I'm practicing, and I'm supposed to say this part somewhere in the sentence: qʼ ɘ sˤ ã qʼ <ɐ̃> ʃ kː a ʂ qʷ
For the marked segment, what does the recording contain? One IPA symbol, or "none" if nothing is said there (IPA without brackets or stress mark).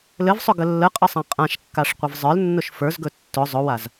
ã